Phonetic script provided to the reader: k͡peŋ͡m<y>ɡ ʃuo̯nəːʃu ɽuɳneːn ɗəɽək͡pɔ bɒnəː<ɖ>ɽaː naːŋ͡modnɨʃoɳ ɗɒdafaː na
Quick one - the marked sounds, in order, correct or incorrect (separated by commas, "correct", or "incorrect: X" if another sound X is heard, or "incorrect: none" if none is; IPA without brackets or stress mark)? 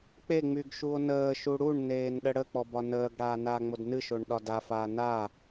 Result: correct, incorrect: ɡ